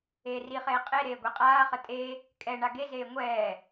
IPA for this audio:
eːriχeː qʼe ɾeːɡʷeqʼaːχə tʼe | kʼɛ ɳaɡezeː ŋʷɛː

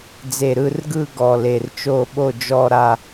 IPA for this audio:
d͡ze˧˩ɾɯ˥˧rɡɯ˥˧ ɡɔ˧˩le˧˩rt͡ʃo˥˧ɓo˥˧ d͡ʒɔ˥˧ɾa˥˧

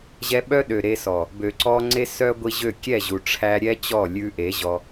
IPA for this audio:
ʑɛ˧ɓœ˦ɗø˨ ɾe˧sɔ˨ | bø˨ǀɔ˧ŋ͡ǀe˦ sœ˦ɡʷi˧ʑø˦˨ kʲɛ˦˨ʑu˨ʈ͡ʂʰæ˧ɾʲɛ˦ t͡ɕɔ˦˨lʲʉ˧ ʔe˨˦ʑɔ˧

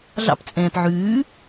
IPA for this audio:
ɮɑ̰pt͡sʼɛ̃ːp ʕʉː

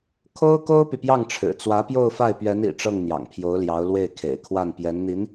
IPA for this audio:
kʰo˥ʊ̯ ko˥ʊ̯py˨pjɑ˥˩ŋʈ͡ʂʰɻ̩˨˩ t͡swä˧˥pjo˥˧ʊ̯fa˥˩ɪ̯ pɥɛ˧˥n ḭ˨˩ ʈ͡ʂɤ˥˩ŋn̪jɑ̰˨˩ŋpʰjo˧˥ʊ̯ljɑ˧˥ʊ̯ lwe˥˩ɪ̯kʰḛ˨˩ɪ̯kʰwa˥˩n pjɛ˧˥nn̪i˧˥n

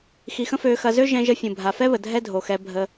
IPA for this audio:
xi˧xə̃˦føː˧xɐ˧ zø˦ʒɛ̃˧ʒə˧ fʲũ˨bʱa˨fɛ˦βə˨ dʱɛ˦dʱo˨xɛ˧bʱə˧

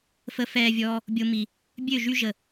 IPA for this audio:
fə˧ fɛː˨ vʲɔː˧ | bʲo˧ mi˨ | bʲø˦˨ʒy˧ ʒə˨

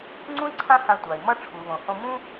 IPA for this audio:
ŋ͡ǀũ˥i̯ǀʰã˥hã˧ tʷa˩i̯mʌ˧ ʈ͡ʂʰu˩βõ˩hõ˧mũ˥

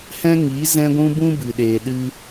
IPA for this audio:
hɛ̃˦ŋi˨˦ zɛ̃˧ɡʷũ˧bũ˧ bɨ˨ɗeː˨ɗɨ˧

